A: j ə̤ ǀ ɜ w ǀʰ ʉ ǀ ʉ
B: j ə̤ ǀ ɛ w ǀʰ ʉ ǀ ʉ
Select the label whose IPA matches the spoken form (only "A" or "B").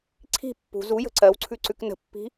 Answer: A